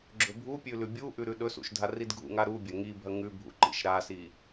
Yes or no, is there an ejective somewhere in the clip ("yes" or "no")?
no